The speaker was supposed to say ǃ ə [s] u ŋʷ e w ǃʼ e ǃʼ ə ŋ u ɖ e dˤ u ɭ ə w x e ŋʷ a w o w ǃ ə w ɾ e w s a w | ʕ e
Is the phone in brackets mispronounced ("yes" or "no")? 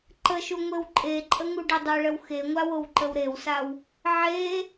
yes